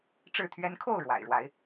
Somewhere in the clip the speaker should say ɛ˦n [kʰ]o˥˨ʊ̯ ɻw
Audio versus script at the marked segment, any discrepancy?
no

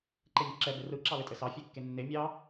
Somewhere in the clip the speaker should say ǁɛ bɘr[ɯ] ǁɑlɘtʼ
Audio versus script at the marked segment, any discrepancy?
no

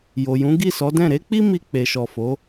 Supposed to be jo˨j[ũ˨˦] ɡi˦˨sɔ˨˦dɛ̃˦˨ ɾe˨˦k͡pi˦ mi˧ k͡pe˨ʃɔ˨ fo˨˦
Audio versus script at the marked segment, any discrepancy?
no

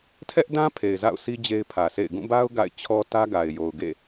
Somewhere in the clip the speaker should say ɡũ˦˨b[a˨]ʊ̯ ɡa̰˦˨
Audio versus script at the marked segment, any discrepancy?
yes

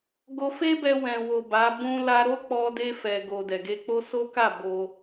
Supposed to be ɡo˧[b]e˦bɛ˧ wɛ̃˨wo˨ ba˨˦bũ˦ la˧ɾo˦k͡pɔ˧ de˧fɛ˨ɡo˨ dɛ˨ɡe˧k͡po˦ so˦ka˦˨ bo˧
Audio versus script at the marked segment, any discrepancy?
yes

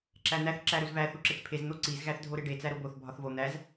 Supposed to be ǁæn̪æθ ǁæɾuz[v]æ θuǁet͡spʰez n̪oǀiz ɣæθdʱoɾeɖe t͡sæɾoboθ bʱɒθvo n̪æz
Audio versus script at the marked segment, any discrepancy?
no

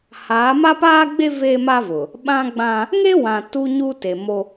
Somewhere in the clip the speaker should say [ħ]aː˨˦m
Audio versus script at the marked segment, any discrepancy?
yes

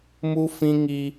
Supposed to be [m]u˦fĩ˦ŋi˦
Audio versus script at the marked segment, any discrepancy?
no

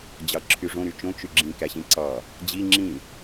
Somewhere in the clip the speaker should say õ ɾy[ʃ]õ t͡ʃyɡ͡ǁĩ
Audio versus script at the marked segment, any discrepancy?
yes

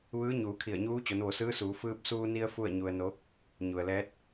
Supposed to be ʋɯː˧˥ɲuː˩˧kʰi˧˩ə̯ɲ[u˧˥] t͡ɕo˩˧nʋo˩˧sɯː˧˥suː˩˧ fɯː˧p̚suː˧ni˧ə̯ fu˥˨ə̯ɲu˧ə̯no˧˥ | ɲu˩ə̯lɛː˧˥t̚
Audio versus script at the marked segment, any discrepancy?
yes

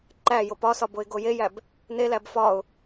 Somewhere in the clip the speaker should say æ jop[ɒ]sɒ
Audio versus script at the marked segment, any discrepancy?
no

